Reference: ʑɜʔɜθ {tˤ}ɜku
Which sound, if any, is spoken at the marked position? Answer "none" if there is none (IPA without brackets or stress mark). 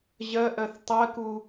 tˤ